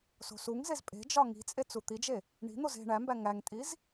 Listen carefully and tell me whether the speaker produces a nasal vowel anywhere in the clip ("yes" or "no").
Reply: no